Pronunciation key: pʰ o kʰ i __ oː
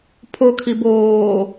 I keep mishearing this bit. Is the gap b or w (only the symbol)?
b